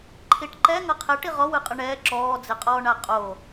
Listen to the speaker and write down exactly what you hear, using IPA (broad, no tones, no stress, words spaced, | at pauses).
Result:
ǃʰiʈǃɛ ŋɤqʰɛ ʈiʁɔ wɯqʼɯɳɛː ǁɔːd͡zeqʼɔːɳa qʼo